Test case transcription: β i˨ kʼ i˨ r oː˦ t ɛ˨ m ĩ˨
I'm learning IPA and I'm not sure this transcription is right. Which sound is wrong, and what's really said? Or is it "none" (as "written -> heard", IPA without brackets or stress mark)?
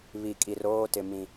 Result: ɛ˨ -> ɪ˨